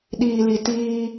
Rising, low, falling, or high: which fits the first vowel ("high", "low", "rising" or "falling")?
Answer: low